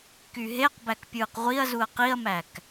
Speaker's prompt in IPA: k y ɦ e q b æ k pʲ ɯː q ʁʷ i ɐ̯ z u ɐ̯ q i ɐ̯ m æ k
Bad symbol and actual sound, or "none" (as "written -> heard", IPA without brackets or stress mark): none